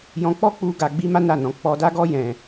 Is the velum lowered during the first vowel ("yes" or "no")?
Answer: yes